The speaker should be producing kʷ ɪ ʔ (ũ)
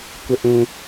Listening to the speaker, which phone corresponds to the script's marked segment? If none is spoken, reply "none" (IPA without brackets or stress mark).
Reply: ũ